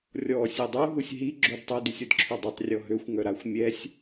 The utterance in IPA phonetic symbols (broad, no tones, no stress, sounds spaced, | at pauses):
rʲ ɔ sʲ e dˤ u ɦ u sʲ ɦ i ɡ͡ǁ o d tˤ u d y sʲ ɔ d ǁʰ ø dˤ y tˤ rʲ ɔ ɦ ø xʷ ŋ œ ɾ a xʷ mʲ ɛ sʲ